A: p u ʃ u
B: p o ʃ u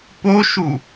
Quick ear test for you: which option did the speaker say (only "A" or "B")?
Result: B